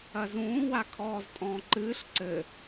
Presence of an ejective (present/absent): present